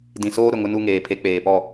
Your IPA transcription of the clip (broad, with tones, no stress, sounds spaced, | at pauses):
d ĩ˨ s oː˦ ɾ ʊ˨ ŋ ʊ˦ n u˦ ŋ eː˨ pʰ e˦ k͡p eː˨ p ɔ˦˨